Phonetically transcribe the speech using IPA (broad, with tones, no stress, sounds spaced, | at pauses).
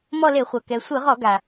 m ɔ˦˨ l e˧˩˧ χʷ ɤ˩ k ɛ˩ sʷ ɯ˧˩˧ ʁ ɔ˧˩˧ ɡ a˩